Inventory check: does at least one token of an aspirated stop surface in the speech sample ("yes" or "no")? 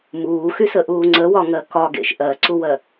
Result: no